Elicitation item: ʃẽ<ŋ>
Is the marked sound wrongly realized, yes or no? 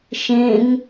no